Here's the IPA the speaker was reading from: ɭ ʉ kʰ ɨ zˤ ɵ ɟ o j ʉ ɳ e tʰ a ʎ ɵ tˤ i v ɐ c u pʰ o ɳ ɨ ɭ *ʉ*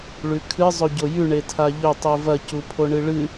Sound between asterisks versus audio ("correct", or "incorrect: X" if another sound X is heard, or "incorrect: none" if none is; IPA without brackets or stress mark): incorrect: ɨ